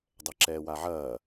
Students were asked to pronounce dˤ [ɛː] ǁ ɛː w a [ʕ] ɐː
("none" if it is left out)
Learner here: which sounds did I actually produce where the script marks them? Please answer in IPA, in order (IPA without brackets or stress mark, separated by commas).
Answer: ɛ, ʕ